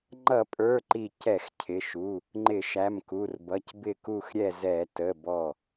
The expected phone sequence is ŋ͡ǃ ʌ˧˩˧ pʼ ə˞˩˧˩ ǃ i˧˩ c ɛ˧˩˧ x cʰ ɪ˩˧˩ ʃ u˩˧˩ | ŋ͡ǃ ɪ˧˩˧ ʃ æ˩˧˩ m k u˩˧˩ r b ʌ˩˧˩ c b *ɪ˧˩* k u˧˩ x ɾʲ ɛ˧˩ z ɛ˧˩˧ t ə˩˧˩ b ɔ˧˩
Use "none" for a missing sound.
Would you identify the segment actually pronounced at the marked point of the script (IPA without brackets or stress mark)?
ɪ˧˩